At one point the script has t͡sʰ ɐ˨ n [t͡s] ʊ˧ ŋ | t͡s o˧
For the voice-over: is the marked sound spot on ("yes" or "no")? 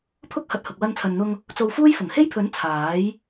no